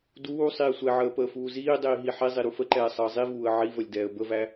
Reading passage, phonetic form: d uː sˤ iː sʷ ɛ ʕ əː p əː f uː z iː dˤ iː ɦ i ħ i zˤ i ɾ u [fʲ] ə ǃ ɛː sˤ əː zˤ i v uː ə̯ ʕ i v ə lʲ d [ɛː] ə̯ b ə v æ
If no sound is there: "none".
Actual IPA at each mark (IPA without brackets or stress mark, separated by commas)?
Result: f, ɛː